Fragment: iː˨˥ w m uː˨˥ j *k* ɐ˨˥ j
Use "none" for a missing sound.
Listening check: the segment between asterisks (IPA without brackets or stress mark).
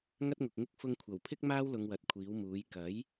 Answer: k